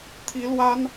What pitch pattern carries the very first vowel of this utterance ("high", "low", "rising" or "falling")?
high